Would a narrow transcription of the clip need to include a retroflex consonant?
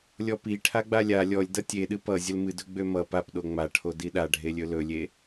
yes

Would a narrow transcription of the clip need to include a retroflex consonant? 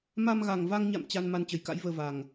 no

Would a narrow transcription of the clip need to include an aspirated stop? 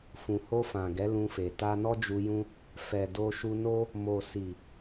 no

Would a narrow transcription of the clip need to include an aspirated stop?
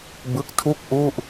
yes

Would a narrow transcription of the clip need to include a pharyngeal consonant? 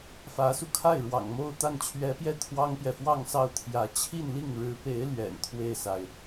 no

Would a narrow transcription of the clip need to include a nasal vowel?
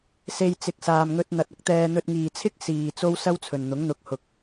no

